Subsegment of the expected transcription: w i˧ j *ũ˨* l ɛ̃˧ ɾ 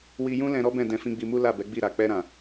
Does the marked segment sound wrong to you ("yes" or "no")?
yes